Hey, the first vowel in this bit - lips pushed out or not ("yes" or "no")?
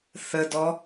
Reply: no